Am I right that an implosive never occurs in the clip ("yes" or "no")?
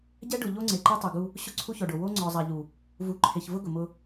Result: yes